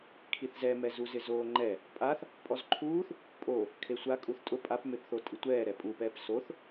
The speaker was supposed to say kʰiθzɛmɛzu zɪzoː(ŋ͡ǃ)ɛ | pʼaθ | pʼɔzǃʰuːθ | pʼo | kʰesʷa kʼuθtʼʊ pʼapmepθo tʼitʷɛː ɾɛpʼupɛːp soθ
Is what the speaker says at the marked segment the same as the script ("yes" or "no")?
yes